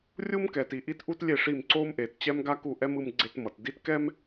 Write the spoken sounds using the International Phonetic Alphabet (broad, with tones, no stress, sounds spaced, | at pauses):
rʲ u˦ m k ɛ˨ t i˨ ʔ i˦ t ʔ u˦ t lʲ e˦˨ ʂ i˦˨ m ǀ o˦ m ʔ e˨ t t͡ɕ ɛ˦ m ɡ a˦ k u˦˨ ʔ ɛ˦ m ɯ˦ m ɡ͡ǀ e˦ t m ʌ˨ t d i˦ t k ɛ˦ m